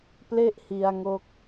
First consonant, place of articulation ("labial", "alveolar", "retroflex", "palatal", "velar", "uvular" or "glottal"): labial